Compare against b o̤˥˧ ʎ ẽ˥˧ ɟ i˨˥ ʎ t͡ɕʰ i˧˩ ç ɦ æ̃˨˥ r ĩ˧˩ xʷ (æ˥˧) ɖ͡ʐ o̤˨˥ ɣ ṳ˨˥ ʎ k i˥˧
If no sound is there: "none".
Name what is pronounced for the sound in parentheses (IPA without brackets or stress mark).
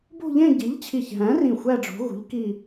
æ˥˧